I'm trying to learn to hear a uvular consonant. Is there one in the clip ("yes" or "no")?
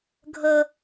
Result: no